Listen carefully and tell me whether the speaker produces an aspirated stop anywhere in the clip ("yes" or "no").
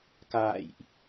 no